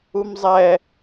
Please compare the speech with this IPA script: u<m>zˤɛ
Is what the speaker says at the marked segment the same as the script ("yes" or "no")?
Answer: yes